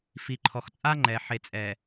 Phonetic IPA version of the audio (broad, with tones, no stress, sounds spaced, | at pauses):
f i˨ ǃʰ ɔ˨ x t͡sʼ a˦ ŋ͡ǃ ɛ˨ ħ e˨ t͡sʼ ɛ˨